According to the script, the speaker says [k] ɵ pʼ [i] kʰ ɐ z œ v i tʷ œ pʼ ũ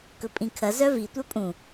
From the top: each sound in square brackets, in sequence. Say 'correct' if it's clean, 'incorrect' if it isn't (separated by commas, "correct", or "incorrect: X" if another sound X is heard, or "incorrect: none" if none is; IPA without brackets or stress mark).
correct, incorrect: ĩ